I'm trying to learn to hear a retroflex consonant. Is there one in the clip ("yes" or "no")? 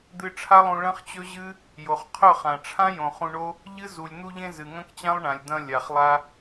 yes